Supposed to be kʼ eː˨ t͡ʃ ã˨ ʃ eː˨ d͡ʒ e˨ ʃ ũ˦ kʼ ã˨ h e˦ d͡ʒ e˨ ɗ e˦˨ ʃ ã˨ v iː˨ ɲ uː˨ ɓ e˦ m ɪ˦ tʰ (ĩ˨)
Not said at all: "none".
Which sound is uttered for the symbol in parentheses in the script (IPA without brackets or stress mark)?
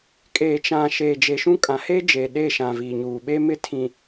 ĩ˨